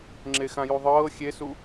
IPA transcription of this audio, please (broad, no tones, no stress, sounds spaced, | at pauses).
ŋ͡ǁ e x ã j u ðˤ ɤː xʲ e s u